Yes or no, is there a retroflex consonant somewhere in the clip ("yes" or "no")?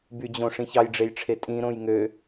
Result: yes